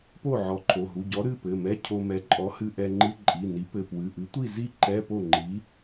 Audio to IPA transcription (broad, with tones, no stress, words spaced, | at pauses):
po˥˨ʕɔ˨˥ǃʰo˩˧˩ ɦu˩˧˩ɟɔ˨˥ɾɨ˩˧˩ pɘ˩˧˩mɛ˧˥˧cʰo˧mɛ˨˥ ǃʼɔ˨˥hɨ˧ʔɛ˧ŋ͡ǃɨ˧˥˧ ǃʼi˩˧˩ni˨˥ pɘ˩˧˩pwɨ˩˧˩ʔɨ˨˥tʷi˥˨ zi˥˨ ǃɛ˧˥˧po˥˨ ŋ͡ǃi˨˥